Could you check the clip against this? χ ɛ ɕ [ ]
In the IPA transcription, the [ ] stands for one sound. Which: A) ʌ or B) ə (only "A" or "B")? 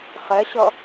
A